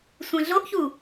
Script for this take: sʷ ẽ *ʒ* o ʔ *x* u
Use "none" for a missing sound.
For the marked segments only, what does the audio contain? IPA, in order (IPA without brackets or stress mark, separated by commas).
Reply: ɮ, ç